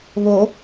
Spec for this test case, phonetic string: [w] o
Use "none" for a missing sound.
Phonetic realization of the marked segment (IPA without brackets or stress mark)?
β